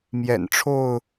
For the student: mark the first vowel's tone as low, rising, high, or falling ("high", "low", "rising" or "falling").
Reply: low